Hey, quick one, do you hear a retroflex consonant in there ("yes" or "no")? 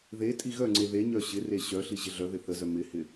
no